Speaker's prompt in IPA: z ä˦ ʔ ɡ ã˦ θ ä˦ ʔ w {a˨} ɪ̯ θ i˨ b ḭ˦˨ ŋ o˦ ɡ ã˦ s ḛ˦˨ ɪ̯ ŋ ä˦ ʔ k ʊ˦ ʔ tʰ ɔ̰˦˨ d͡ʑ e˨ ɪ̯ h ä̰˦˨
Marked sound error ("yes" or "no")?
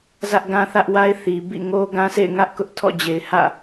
yes